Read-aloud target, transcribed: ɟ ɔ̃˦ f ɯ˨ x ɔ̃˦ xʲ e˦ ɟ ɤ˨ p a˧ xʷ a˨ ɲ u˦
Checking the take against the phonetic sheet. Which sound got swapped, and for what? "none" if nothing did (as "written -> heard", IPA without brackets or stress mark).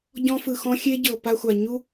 none